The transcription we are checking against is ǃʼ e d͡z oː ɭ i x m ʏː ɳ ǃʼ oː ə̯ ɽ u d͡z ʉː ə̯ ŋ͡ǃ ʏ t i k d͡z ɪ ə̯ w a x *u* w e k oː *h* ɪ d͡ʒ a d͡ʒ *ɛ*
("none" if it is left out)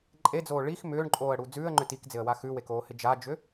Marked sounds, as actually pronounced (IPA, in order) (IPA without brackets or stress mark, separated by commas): ʉ, h, ʏ